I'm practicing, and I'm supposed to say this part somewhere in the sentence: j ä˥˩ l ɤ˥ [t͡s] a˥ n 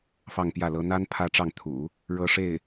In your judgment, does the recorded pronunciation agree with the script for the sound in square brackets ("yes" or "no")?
no